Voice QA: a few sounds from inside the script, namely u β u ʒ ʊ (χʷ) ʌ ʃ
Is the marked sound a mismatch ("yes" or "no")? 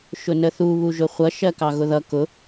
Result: no